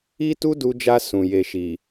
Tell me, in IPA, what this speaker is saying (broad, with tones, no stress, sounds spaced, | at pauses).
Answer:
i˦ t u˦ d u˧ d͡ʒ a˧ s ũ˨ j e˧ ʃ i˨